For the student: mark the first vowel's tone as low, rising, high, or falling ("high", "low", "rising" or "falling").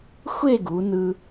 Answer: falling